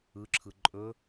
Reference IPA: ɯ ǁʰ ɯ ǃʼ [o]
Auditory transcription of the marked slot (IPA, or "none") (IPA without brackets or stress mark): ɵ